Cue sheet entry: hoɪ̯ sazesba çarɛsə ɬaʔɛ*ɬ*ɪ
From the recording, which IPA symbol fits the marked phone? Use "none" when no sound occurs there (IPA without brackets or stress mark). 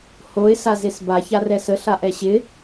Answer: ɕ